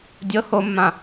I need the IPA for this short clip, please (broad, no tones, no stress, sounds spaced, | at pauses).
dʲ ɤ h o mː ã